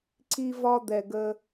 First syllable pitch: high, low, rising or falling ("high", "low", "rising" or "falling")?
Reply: high